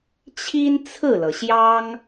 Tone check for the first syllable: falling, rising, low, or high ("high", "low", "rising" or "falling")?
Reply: high